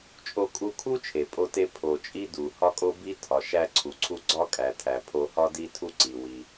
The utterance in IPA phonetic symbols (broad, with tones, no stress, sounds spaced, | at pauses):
t͡ʃʼ o˧ kʼ u˧ kʰ u˥ t͡ʃʰ e˩ pʼ o˧ t e˧ pʰ o˩ t͡ʃʼ i˥ d u˩ h ɒ˥ kʼ o˥ b i˥ tʰ ɒ˩ ʃ æ˧ ǀʰ u˩ ǀʰ u˧ ɡ͡ǀ ɒ˥ kʼ æ˩ tʰ æ˩ pʰ o˧ h ɒ˥ d i˥ tʰ u˥ ǀ i˩ w i˩